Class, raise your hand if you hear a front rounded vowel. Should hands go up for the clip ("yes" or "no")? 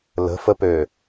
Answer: yes